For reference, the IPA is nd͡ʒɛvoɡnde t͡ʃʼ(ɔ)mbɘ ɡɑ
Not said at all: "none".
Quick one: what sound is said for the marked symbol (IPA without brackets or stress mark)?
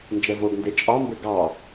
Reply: ɑ